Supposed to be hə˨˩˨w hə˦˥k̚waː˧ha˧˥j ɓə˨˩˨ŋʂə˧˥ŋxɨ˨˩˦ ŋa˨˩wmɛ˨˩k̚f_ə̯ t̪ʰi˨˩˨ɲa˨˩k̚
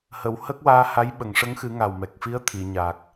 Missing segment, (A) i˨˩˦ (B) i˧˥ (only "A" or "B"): B